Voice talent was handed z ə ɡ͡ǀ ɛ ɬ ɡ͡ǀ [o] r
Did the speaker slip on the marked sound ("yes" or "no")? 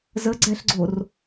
no